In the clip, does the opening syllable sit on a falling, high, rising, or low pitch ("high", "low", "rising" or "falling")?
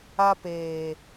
high